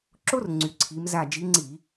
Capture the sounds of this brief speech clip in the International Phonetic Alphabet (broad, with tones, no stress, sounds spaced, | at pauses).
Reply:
ǁ o˥ r ŋ͡ǀ y˨˦ ǀʰ i˨˦ m z a˦˨ d͡ʒ i˨˦ ŋ͡ǀ i˧˩˧